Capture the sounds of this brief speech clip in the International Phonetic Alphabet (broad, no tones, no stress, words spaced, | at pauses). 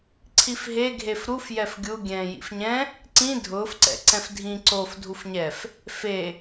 ǀʰifɦeɡʱef ɾuf jɛfɡʲu ɡʲɛ̃ːjḭfɲɛ̃ | ǀĩ dʱʊːfǀɛ̰ ǀɛ̃fdʱĩ ǀof dʱufɲɛf | fe